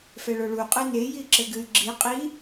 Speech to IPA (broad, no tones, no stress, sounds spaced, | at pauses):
f ɛ ɭ o ɭ u qʼ ɨ n e j i ǁ ɘ ɡ ɨ y̯ ɡ͡ǁ i qʼ i